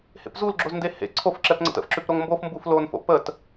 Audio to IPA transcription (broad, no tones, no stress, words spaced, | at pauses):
hḛpzulɡ͡ǁoz ndehḛ ǀʰofǁɛpŋ͡ǀə̰t ə̰fǁʉp ɾoŋmbof mbuflonfo̰ pət